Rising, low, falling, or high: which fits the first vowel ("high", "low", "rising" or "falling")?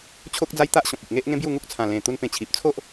high